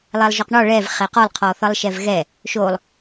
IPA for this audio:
lˠ ɛ lˠ ʒ ɔ q ɳ ɔ ɭ ɛ v χ ɛ q ɔ lˠ qʰ ɔ θ ʌ lˠ ʃ ɛ v ɣ ɛ | ʃ o lˠ

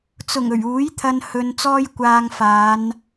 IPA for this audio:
t͡s ʊ˨˩ ŋ ɵ˨˩ ɥ uː˨˥ j t̪ʰ ɐ˧ n h ɵ˧ n t͡s ɔː˥ j kʷ aː˧ ŋ f aː˨˧ n

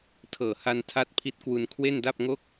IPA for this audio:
tʰ ɤː˨˩ h a˧ n tʰ a˦˥ t̚ pʰ i˦˥ t̚ k w u˧ n kʰ w e˥˩ n d a˥˩ p̚ ŋ o˥˩ k̚

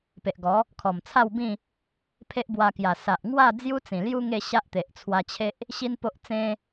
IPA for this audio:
p e˨ ʔ ɡ ɔ˨˦ | kʰ ɔ˨˩ m t͡sʰ a˥˧ w b ĩ˥˧ | pʰ e˦ ʔ b w a˧ k j a˨˩ s a˨ ʔ ŋ w a˥˧ d͡z j u˦ t͡s ĩ˨˩ l j u˦ ŋ e˥˧ ɕ a˦ ʔ t̪ e˨ ʔ t͡sʰ w a˧ t͡ɕʰ e˦ ʔ | ɕ i˦ n p o˦ ʔ t͡s ẽ˦

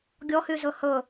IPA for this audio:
ɡʲ ɔ h y z ɵ h ɵ

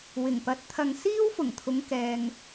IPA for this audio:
w ɪ˨˩ ŋ p ɐ˨˥ t̚ t̪ʰ ɐ˧ ŋ s iː˥ w f ʊ˨˩ ŋ t̪ʰ ʊ˨˧ ŋ k ɛː˧ ŋ

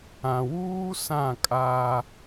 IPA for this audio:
ã˨ w uː˦ s ã˦˨ kʼ aː˦

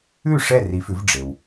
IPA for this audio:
ʉ˥˩ ʂ ɛ˥˩ r i˩˥ f ʉ˩˥ v ɖ͡ʐ e˩ w

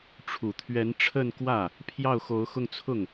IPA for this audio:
ʈ͡ʂʰ u˨˩ t̪ʰ ɥ ɛ˧˥ n ʈ͡ʂʰ ə˥˧ n k w ä˥˩ | pʰ j ɑ˥˩ ʊ̯ x o˧˥ ʊ̯ x ʊ˥˧ ŋ t͡sʰ ʊ˥˩ ŋ

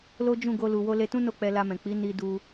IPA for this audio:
l o˦ d͡ʒ ũ˦˨ ɡ o˧ l u˨ w o˧ l e˧ t ũ˦ n o˦˨ k͡p ɛ˧ l a˧ m ɛ̃˨ k͡p i˨˦ n i˧ d u˧

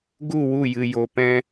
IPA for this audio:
ɡ u˦˨ w u˦˨ j ɨ˧ j o˧ p ɛ̃˧

